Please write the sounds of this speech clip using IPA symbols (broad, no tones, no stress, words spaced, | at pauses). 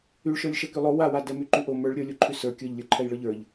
yɭʃə˞lʲʃɛ kylˠo wawa dɛmyǃyʔo mə˞ɭ ɾʲə˞ lʲoǃʰysə˞ kʲə˞ʎlʲə˞ ǃʰɛjɭə˞ʎə˞ʎ